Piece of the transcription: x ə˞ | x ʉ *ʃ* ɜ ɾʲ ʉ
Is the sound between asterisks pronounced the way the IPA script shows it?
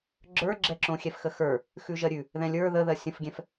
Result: no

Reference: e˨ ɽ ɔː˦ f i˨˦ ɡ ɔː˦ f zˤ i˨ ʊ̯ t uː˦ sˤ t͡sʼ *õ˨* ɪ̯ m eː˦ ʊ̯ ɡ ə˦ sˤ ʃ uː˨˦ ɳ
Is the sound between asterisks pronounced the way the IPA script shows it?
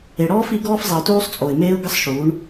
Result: no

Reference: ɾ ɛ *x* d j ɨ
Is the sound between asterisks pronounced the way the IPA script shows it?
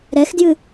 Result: yes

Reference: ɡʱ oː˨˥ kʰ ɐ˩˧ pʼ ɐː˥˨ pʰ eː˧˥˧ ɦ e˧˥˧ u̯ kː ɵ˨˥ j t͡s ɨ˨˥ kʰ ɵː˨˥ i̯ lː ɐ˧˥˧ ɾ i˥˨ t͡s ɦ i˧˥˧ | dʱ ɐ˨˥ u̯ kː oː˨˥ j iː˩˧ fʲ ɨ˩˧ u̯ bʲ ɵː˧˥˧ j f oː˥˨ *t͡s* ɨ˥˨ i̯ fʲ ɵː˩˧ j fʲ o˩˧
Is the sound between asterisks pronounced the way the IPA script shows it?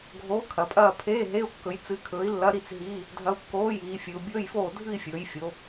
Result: no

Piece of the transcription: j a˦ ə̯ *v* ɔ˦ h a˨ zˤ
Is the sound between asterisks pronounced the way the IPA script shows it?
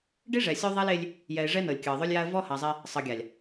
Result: yes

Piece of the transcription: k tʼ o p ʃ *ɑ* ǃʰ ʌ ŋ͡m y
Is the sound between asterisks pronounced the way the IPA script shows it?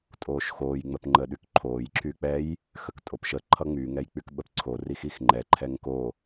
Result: no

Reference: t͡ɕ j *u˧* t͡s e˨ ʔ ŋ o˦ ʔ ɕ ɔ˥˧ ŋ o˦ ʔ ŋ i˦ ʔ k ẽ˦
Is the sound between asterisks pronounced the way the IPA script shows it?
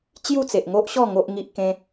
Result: no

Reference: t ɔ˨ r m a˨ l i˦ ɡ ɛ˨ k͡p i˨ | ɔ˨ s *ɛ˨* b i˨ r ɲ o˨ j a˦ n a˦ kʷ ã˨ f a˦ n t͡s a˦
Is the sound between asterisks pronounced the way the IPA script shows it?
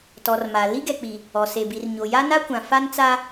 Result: no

